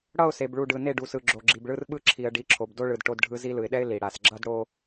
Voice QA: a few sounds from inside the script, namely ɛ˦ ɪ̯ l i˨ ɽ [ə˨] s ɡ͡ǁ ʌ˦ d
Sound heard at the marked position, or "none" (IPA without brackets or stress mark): a˨